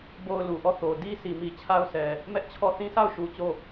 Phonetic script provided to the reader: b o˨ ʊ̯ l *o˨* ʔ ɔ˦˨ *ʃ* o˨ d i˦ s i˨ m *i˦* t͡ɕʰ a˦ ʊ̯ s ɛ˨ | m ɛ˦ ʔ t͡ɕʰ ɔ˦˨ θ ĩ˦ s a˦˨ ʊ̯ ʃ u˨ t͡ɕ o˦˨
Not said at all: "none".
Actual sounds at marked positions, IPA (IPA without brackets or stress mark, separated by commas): u˨, θ, i˨